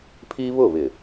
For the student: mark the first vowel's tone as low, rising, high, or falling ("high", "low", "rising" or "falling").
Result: high